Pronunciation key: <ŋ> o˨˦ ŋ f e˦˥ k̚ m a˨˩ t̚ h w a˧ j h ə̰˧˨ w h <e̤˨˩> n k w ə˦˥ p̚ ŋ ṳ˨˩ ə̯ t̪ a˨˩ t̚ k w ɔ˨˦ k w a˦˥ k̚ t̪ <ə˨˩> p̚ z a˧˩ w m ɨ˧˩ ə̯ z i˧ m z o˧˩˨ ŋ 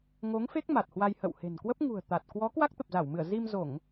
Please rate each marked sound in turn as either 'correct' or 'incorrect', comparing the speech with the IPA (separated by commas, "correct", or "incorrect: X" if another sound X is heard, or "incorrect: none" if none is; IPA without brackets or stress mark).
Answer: correct, correct, correct